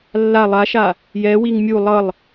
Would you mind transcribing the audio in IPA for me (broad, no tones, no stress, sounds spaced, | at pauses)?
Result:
lː a lˠ a ʃ a | j ɛ w i ŋ mʲ u lˠ ʌ lˠ